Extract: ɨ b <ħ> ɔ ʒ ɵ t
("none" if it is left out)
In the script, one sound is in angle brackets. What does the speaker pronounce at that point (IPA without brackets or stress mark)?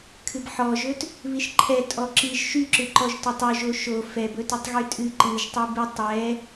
ħ